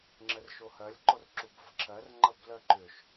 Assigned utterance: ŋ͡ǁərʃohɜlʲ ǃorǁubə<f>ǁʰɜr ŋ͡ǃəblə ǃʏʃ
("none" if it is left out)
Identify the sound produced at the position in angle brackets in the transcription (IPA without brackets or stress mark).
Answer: f